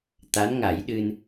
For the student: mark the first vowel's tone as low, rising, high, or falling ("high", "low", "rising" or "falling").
rising